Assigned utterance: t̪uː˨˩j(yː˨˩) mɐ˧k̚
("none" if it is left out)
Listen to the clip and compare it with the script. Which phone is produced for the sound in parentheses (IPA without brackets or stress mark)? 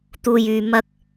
yː˨˩